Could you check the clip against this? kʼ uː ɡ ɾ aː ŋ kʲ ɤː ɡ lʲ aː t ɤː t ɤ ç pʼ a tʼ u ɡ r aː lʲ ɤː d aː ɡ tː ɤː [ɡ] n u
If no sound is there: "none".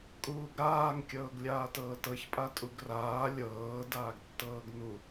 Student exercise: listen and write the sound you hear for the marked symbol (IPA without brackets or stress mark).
ɡ